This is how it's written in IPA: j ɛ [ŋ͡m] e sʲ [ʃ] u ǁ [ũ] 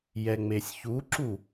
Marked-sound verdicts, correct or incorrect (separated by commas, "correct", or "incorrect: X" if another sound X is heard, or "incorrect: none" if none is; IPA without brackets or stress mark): correct, incorrect: ç, incorrect: u